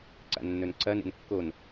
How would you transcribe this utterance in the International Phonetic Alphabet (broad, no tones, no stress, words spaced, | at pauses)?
ǀa̰nːɵnǀɐ nḛnkːon